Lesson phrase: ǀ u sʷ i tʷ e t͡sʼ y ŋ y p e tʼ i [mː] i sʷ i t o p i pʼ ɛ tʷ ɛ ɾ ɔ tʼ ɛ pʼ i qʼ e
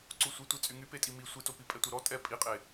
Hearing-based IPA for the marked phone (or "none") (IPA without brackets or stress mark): m